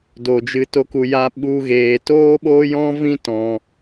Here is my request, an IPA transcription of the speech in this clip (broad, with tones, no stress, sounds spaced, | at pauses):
d o˧ d͡ʒ ɨ˧ t o˦ k u˧ j a˦ ɓ u˦ ɣ eː˧ t oː˦ ɓ oː˦ j ɔ̃˦ v ĩ˦ t ɔ̃˦